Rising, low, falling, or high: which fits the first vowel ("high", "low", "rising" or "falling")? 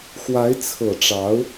rising